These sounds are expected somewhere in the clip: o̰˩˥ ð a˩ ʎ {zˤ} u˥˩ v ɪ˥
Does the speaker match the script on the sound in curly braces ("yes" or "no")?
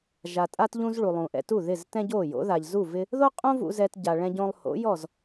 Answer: no